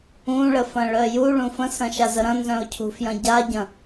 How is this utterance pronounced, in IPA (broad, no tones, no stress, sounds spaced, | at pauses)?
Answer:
ũ ɭ ə f ɐ̃ ɭ œ j u ɭ ũ f ə̃ s ɐ̃ ʃ a z ə ɾ ɐ̃ n z œ̃ ʊ̯ cʰ ṳ f j ɐ̃ ɟ a ɟ ɐ̃